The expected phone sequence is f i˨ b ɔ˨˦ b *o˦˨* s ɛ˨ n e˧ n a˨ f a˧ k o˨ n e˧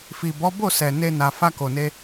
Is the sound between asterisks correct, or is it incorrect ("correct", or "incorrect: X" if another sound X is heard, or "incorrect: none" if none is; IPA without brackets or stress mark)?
correct